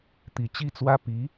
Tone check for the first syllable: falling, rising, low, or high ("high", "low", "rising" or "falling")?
low